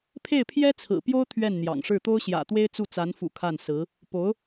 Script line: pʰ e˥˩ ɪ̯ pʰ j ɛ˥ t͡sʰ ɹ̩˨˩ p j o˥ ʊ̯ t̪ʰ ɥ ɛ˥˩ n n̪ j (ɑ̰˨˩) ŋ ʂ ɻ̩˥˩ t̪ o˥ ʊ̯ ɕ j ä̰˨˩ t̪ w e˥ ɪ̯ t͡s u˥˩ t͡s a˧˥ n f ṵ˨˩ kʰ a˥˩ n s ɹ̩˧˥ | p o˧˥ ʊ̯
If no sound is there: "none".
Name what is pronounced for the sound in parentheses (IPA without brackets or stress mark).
ɑ̰˨˩